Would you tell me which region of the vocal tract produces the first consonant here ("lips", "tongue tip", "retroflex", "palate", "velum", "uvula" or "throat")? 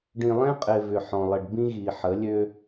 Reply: retroflex